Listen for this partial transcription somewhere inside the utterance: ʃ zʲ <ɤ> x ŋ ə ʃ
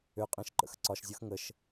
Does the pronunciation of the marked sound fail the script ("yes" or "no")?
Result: no